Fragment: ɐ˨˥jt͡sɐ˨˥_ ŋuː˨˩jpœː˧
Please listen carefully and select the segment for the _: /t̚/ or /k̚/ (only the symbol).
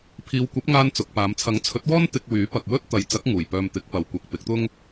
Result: k̚